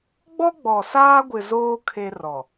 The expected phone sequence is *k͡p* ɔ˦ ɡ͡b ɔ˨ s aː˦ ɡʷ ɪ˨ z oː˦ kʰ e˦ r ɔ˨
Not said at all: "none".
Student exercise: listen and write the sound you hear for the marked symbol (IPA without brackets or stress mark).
ɡ͡b